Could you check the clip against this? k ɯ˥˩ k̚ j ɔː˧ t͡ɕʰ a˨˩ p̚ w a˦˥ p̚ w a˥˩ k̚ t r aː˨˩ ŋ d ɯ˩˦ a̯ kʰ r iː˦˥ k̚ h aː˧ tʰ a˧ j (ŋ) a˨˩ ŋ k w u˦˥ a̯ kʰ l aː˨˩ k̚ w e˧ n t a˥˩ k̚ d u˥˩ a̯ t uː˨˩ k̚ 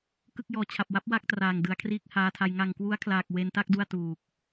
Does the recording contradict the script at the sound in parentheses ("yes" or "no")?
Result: no